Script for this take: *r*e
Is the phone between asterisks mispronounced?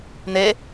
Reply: yes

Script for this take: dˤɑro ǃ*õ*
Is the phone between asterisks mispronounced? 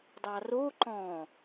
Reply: yes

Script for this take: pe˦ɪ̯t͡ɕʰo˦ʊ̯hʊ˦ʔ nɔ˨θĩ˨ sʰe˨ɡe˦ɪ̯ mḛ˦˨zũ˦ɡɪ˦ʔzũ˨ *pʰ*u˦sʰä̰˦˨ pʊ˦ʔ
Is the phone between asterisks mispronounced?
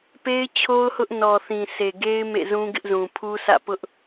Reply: no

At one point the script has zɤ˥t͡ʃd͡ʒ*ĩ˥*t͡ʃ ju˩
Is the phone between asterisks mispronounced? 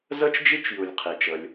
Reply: yes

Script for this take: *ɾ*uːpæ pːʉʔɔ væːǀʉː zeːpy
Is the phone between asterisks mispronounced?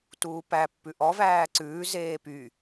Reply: yes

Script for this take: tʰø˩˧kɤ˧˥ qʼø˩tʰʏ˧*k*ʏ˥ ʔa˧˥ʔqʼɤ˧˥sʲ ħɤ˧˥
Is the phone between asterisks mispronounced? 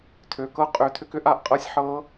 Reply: no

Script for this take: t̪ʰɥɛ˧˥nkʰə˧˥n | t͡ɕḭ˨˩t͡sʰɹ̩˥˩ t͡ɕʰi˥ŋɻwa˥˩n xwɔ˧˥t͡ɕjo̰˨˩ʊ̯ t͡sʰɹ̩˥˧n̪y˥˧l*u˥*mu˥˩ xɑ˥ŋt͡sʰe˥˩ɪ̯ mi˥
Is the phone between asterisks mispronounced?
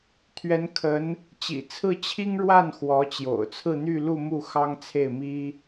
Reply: yes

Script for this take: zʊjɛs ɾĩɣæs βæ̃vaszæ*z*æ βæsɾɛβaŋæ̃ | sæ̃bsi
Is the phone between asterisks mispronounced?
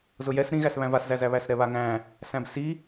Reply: no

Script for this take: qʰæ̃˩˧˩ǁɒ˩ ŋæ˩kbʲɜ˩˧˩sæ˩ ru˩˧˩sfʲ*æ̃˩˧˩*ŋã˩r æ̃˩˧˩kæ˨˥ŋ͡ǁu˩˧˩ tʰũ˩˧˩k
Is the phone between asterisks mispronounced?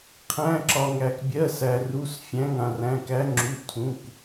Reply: no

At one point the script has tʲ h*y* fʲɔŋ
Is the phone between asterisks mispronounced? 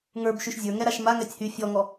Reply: no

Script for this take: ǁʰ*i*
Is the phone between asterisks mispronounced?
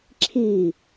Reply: no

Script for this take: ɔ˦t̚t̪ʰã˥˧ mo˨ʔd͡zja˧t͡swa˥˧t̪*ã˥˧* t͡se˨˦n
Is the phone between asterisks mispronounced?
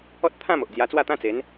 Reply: yes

